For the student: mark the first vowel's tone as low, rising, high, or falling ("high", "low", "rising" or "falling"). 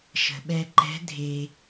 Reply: low